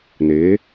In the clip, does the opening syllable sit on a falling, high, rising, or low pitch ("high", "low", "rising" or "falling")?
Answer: rising